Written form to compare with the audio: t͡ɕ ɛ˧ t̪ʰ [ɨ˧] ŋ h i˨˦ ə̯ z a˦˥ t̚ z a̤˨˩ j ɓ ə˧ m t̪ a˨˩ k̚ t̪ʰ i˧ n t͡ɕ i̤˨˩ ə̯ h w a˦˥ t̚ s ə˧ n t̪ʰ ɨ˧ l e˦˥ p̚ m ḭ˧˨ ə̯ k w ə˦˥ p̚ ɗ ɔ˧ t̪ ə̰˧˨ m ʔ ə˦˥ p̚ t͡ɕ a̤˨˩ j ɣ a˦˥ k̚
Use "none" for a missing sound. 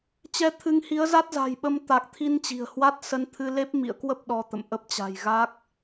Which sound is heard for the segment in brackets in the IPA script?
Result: ɨ˧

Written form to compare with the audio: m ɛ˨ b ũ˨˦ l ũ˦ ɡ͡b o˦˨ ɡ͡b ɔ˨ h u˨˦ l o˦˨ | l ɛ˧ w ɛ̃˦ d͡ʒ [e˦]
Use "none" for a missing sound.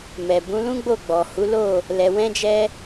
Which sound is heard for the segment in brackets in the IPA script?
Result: ɛ˦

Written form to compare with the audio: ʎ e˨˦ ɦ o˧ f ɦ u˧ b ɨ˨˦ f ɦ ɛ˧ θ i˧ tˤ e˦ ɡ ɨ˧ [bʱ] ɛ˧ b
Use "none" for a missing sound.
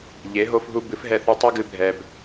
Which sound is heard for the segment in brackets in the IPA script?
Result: bʱ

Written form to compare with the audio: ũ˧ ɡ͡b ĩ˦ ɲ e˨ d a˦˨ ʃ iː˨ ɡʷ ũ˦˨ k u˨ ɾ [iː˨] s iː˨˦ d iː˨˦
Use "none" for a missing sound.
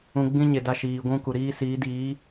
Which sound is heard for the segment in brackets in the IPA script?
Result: iː˦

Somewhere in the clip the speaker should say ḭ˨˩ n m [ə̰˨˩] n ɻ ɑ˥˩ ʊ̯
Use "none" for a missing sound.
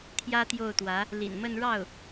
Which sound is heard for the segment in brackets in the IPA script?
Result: ə˥˧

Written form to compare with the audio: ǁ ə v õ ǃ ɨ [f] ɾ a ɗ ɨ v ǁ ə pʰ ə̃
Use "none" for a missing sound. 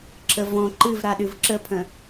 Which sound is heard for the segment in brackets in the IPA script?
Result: v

